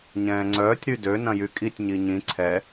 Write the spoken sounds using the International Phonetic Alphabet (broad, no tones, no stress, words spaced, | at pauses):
ɲɛ̃ːŋ͡ǀœːtʲ ɾydø nɐ̃jykʼitʲ ɲiɲĩ ǀʰɛ